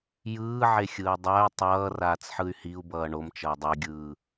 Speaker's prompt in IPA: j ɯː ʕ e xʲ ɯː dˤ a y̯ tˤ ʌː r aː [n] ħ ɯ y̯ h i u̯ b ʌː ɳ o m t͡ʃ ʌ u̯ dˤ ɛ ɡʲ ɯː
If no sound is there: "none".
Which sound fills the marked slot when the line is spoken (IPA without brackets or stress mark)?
t͡s